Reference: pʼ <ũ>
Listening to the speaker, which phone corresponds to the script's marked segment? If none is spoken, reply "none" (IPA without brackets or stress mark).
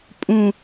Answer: ũ